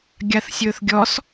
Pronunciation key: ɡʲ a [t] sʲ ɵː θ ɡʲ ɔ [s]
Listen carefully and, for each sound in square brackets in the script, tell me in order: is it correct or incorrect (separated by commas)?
incorrect, correct